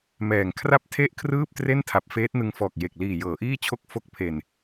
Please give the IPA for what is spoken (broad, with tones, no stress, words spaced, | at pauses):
mɛː˨˩ŋ kʰra˥˩p̚tʰe˥˩ʔkʰrɯː˥˩p̚ tre˥˩ntʰa˨˩p̚ feː˦˥t̚nɯ˧ŋfɔː˨˩k̚je˨˩k̚ liː˨˩jɤː˩˦ʔiː˥˩ t͡ɕʰo˥˩k̚fo˦˥k̚pʰe˨˩n